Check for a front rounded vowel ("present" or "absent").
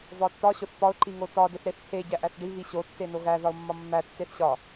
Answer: absent